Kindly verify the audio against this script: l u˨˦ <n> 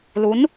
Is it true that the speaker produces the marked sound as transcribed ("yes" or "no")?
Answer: yes